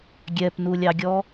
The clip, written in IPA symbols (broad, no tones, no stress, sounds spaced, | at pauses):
ɡʲ ɛ p n u lʲ ɑ ɡʲ ɔ